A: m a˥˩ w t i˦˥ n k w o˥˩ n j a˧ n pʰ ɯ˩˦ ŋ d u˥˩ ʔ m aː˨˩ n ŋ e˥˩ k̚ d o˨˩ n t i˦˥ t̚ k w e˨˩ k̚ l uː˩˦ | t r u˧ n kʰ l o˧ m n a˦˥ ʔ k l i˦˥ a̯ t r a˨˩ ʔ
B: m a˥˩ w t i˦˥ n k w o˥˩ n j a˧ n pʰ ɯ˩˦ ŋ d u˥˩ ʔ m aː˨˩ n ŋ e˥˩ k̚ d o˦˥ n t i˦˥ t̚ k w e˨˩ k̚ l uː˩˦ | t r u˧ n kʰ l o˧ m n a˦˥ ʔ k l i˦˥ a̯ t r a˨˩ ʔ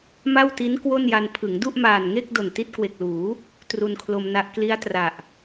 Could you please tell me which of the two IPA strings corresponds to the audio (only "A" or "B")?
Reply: A